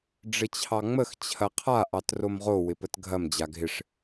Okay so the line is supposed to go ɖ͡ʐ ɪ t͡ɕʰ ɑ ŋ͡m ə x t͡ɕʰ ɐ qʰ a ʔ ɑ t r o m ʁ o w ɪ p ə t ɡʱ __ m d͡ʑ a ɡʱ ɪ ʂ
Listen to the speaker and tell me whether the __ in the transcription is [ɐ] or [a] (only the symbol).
ɐ